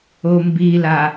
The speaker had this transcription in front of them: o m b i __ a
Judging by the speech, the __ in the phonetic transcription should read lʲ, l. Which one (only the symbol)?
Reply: l